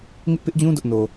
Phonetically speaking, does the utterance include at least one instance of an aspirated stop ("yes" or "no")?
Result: no